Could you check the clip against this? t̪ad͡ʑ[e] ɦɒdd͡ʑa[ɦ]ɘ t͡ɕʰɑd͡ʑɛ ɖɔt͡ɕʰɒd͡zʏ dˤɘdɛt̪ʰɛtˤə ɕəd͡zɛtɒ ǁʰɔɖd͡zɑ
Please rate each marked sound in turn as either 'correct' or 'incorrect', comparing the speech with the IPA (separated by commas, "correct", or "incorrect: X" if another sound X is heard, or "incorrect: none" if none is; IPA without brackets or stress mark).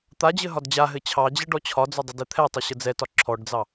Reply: incorrect: ɘ, correct